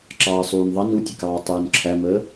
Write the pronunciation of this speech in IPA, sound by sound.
ǁ ɑː sˤ uː n ðˤ ɑ n u tʲ ə k ɑː tˤ uː n ǁʰ æ m əː

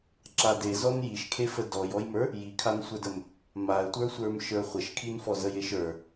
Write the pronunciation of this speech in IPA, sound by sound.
ǁ a d e z ɔ n j i ʃ kʰ e f ə d ɔ j ɔ j m ə˞ | j i kʰ a n sʷ ə˞ d ə m | m a ə̯ tʷ ə˞ sʷ ə˞ m ʃ ə˞ χʷ ə ʃ kʰ i n f ɔ z ə j e ʃ ə˞

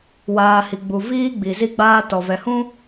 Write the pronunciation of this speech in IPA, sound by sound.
w aː˨ h i˨ ɡ͡b u˨ v iː˦ ɡ͡b i˨ z i˦ ɡ͡b aː˦ t ɔ˨ v ɛ˨ h ũ˦

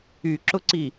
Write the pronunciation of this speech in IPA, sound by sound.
y ǁ ʊ ǀ i

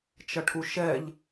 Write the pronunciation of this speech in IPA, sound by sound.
t͡ʃ ʌ ʈʰ u ʃ ɛ ʎ

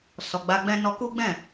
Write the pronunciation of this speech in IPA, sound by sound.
s ɔ˨ ɡ͡b a˧ ɡ͡b ɛ̃˦ n ɔ˧ k u˦ ɡ͡b ɛ̃˦˨

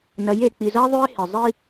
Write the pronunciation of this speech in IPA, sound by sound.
n ɐ˨˦ j e˨ k͡p i˨ z ɐ˦ e̯ ðˤ ʉ˦ e̯ h e˨ zˤ i˦

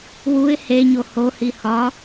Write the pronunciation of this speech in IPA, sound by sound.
w u ɪ̯ h e ɲ o h o h i h ɒ

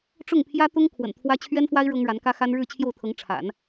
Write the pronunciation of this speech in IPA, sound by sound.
ʈ͡ʂ ʊ˥˩ ŋ pʰ j ä˥ t̪ ʊ˥ ŋ kʰ w ə̰˨˩ n t̪ʰ w ä˥ t͡ɕʰ ɥ ɛ˥ n f w a˥ ɪ̯ ɻ ɤ˥ ŋ ɻ a˧˥ n k ä˥ x a˥ n ɻ ɻ̩˥˧ t͡ɕʰ j o˥˩ ʊ̯ t̪ʰ ɤ˧˥ ŋ ʈ͡ʂʰ a̰˨˩˦ n

